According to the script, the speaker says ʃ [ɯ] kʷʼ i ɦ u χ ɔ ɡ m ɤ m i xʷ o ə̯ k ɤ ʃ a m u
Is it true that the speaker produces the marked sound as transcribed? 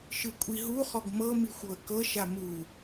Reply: yes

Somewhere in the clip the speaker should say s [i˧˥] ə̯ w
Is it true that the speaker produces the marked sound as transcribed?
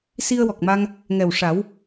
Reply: no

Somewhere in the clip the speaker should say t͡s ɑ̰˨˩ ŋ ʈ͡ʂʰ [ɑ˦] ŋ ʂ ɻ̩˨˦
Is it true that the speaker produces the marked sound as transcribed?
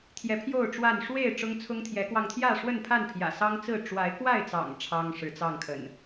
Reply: yes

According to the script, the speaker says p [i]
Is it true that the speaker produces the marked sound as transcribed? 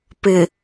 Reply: no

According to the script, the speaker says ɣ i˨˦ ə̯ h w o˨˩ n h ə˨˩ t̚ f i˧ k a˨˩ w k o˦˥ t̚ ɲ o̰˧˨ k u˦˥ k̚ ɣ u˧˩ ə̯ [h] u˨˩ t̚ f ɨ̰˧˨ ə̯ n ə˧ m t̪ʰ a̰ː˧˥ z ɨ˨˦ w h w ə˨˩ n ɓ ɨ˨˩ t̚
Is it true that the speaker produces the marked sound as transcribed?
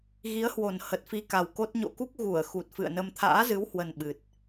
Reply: no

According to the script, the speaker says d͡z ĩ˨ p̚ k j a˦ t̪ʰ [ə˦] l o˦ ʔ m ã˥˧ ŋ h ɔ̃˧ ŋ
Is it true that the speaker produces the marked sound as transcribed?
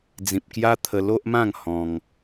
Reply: no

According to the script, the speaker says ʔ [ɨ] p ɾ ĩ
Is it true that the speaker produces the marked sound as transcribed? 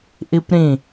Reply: no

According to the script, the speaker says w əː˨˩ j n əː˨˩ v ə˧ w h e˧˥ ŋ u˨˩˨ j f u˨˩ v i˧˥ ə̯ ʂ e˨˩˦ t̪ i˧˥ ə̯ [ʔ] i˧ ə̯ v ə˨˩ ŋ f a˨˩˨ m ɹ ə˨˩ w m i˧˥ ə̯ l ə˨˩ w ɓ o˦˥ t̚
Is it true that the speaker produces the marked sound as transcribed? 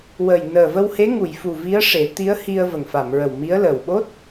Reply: no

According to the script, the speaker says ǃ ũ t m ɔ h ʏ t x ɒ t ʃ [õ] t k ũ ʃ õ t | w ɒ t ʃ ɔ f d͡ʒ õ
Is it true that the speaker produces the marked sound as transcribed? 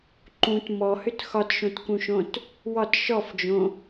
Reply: yes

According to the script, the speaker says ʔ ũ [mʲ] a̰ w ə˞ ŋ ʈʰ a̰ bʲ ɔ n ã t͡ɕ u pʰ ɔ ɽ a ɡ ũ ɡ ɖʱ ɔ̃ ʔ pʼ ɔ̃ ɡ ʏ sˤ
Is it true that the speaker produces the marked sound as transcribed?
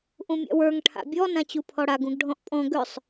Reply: yes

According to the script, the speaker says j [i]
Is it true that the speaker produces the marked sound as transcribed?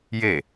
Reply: no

